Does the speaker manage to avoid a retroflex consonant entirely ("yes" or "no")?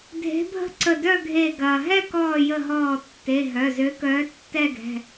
yes